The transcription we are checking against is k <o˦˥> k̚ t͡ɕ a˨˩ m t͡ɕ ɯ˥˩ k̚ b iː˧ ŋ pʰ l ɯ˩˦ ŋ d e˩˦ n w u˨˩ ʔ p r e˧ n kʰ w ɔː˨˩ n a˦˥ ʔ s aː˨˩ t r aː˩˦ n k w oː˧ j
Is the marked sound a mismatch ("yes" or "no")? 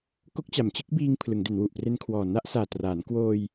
no